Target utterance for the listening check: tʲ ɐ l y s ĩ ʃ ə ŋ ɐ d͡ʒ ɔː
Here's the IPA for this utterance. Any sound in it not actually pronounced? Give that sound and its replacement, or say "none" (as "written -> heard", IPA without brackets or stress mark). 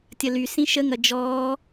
none